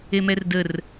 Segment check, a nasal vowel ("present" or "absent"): absent